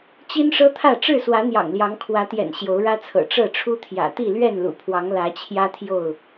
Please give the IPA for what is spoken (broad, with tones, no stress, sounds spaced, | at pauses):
t͡ɕ i˦ n ʂ ɤ˦ t̪ʰ ä˥˨ ʈ͡ʂ ɻ̩˥˨ s w ä˨˦ n̪ j ɑ̰˨˩ ŋ l j ɑ˨˦ ŋ kʰ w ä˨˦ t̪ j ɛ̰˨˩ n ɕ j o˨˦ ʊ̯ ɻ ä˦ t͡sʰ ɤ̰˨˩ ʈ͡ʂ ɤ˥˨ ʈ͡ʂʰ u˦ t̪ʰ j ä̰˨˩ t̪ i˥˨ l ɥ ɛ˥˨ n l ṵ˨˩ pʰ w ɑ˨˦ ŋ l ä˨˦ t͡ɕʰ j ä˦ t̪ʰ j o˥˨ ʊ̯